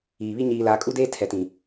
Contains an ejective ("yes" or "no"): yes